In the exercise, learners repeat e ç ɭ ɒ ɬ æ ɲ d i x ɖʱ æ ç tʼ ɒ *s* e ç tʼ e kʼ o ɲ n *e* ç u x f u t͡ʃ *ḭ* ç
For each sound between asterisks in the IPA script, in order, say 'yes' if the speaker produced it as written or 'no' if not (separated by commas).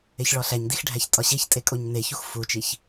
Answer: no, yes, no